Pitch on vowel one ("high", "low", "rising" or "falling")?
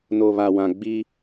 low